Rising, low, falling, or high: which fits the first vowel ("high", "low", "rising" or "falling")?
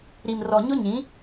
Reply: low